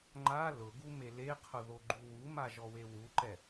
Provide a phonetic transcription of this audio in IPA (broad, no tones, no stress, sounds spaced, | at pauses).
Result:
ŋ͡ǃ a l ʊ ɡ u m e l e qʰ ʊ ð o ɡ͡ǃ u w u m a ʒ ɔ w e w u ǃ ɛ